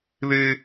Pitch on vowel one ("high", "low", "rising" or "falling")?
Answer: high